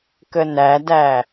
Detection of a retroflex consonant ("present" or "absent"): absent